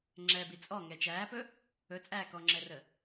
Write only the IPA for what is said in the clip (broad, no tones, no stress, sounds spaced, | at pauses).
ŋ͡ǁ ɛ b i t͡sʼ ɔ ŋ ɛ t͡ʃ æː p ɵ | ɵ t͡sʼ æː k ɔ ŋ͡ǁ ɛ r ə